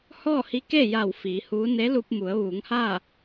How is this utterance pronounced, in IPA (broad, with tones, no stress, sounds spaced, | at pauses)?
h ɔː˥˨ h i˧˥ k e˥˨ j a˧˩ w f iː˩˧ h uː˧˥ n e˧˥ l u˧ p̚ m u˩˧ ə̯ ʋ uː˩˧ ŋ h aː˥˨